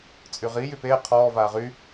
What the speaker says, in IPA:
t͡sʼ y ʁ i j y p eː qʰ ɔː v aː ʁ y

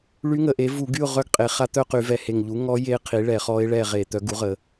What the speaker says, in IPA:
ɭ y˧˥ ŋ ə˩˧ ʔ e˩˥ v u˧˩˧ ɡ y˦˨ ʊ̯ ʁ œ˦˨ ɡ qʼ e˩˧ χ a˧˥ t̪ œ˦˨ q y˧˩˧ v ɛ˨˩ h e˨˩ ŋ ʎ u˩˥ ŋ ɔ˧˥ j e˧˥ qʰ i˩˥ ɭ ɛ˧˩˧ χ ɔ˧˥ ɪ̯ ɭ ɛ˦˨ ʁ e˧˩˧ t̪ œ˩˥ ɡ u˩˥ ʁ ə˩˧

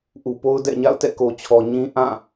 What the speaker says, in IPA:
ʔ u˨ p o˦ ʊ̯ d ɛ̰˦˨ ɲ a̰˦˨ ʊ̯ t ɛ̰˦˨ k o˨ t͡ɕʰ ɔ˨ ɲ ĩ˦ ʔ ã˦˨

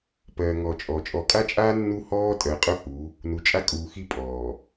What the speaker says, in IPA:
p ɜː˨ ŋ ɔ˨ t͡ʃʼ ɔ˨ t͡ʃʼ ɔ˨ kʼ a˦ t͡ʃʼ aː˦ nː u˦ h ɔː˦ tʼ ɜ˨ qʼ ʊ˦ h u˨˦ | n u˨ t͡ʃʼ a˦ kʼ uː˨ x i˦ pʼ ɔː˨

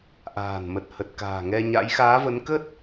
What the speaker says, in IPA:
ʔ a̤ː˨˩ n m ə˨˩ t̚ h ə˨˩ t̚ k a̤ː˨˩ ŋ ɛ˧ ɲ a̰˧˥ j x aː˨˦ v ə˨˦ n k ə˦˥ t̚

